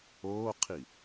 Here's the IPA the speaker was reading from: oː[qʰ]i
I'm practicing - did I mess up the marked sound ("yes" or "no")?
no